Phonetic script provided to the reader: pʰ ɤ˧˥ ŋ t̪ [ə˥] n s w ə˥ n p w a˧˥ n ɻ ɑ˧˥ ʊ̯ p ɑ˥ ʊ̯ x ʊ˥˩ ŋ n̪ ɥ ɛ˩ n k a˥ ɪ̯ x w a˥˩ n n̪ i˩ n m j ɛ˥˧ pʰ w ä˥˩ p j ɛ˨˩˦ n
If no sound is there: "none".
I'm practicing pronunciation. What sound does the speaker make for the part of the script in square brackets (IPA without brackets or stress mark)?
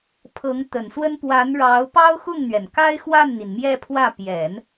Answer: ə˨˩